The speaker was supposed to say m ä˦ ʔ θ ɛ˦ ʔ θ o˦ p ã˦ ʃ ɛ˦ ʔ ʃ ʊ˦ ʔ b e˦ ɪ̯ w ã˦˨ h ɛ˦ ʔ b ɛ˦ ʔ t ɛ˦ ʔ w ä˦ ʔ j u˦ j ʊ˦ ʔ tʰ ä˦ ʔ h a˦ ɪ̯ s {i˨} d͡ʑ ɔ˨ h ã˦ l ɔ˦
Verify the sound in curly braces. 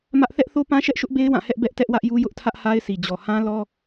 correct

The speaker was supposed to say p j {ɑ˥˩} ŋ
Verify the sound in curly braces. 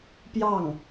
correct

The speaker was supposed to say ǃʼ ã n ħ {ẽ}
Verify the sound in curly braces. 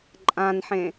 correct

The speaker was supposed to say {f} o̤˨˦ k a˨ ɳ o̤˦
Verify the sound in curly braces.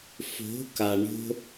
correct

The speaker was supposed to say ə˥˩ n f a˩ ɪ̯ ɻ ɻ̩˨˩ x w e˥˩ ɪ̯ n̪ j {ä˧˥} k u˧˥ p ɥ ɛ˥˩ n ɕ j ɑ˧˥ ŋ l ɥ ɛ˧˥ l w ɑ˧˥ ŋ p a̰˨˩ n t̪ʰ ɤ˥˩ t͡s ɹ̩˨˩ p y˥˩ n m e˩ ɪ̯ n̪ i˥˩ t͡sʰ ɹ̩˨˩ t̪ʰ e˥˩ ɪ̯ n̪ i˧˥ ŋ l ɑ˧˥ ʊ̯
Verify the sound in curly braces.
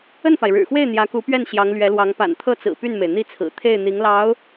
correct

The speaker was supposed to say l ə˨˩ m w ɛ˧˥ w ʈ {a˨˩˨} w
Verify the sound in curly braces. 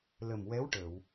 incorrect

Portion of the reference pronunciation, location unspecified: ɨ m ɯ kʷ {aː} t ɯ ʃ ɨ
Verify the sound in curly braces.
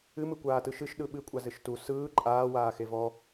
correct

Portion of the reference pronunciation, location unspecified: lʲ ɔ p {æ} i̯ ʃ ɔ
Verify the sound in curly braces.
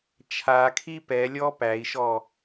correct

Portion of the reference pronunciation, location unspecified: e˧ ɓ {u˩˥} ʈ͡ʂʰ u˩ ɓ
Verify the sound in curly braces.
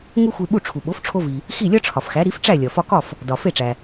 incorrect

